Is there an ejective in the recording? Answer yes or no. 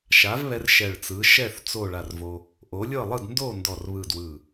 no